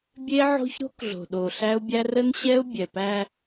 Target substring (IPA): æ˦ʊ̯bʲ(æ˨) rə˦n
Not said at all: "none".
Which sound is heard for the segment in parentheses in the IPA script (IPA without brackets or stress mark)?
æ˦